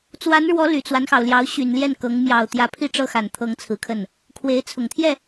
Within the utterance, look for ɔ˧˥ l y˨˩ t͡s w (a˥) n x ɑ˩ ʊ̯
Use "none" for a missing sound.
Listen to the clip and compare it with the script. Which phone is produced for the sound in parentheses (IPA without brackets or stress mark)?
a˦